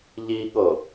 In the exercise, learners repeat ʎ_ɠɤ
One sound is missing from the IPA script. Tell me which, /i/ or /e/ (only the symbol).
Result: i